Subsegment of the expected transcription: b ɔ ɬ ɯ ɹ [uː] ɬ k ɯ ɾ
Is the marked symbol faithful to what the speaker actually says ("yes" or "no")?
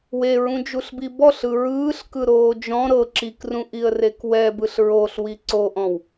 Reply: no